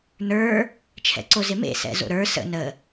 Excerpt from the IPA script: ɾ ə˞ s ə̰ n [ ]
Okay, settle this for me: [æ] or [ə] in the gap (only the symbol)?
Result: ə